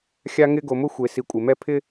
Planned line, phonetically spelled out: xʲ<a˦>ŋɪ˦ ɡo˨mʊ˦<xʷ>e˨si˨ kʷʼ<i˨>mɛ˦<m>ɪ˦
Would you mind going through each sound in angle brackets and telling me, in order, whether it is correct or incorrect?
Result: correct, correct, incorrect: ɪ˨, incorrect: pʰ

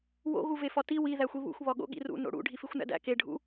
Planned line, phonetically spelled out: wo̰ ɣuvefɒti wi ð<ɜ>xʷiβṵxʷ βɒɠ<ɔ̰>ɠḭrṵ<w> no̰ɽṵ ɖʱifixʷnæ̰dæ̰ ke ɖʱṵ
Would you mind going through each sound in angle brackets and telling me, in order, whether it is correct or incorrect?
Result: incorrect: æ, incorrect: o̰, incorrect: none

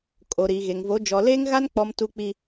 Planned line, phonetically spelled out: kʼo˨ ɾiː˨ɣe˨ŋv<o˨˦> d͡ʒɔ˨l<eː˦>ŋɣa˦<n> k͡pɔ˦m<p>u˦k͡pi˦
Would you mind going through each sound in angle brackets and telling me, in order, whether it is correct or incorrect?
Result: correct, correct, correct, incorrect: t

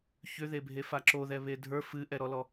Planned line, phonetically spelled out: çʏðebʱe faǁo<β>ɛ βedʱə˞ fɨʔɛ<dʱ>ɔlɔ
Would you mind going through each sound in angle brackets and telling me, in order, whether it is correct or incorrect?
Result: incorrect: ð, incorrect: ɾ

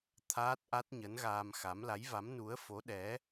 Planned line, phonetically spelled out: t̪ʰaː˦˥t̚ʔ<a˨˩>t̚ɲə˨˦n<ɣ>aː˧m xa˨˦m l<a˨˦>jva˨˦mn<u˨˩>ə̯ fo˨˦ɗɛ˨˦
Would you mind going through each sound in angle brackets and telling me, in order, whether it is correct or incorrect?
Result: incorrect: a˦˥, correct, correct, incorrect: u˨˦

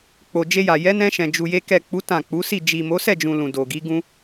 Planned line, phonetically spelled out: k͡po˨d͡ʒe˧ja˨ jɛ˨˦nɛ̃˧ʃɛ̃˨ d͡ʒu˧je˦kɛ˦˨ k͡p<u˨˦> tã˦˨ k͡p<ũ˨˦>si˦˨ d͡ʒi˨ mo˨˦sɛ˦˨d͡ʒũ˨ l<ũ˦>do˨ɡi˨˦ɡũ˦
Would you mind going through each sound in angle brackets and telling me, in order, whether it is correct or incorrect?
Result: correct, incorrect: u˨˦, incorrect: ũ˨

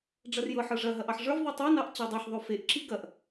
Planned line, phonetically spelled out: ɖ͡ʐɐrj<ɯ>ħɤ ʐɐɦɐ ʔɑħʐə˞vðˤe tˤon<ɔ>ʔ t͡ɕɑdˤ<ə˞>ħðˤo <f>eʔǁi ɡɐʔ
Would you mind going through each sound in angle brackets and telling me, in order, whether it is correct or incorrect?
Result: incorrect: ɤ, incorrect: ɑ, incorrect: ɤ, correct

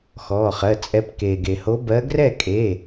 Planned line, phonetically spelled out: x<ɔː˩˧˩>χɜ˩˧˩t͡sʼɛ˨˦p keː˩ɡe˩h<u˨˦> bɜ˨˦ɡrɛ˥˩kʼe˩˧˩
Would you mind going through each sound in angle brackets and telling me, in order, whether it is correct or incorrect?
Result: correct, incorrect: o˨˦

